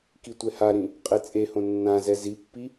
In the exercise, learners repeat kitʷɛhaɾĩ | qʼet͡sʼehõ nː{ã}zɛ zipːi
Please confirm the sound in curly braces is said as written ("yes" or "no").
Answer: yes